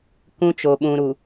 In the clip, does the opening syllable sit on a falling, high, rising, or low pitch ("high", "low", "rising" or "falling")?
high